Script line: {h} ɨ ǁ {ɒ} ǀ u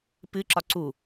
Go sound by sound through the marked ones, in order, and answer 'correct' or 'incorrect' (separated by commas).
incorrect, correct